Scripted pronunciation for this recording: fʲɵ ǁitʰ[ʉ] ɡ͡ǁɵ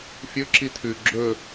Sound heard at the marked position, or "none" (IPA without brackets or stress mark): ʉ